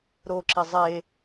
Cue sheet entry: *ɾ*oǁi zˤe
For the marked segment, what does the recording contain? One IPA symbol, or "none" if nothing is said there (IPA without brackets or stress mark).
ɾ